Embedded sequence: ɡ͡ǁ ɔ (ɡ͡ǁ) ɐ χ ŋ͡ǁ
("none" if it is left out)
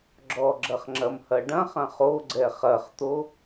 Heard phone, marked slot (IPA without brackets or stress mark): ɡ͡ǁ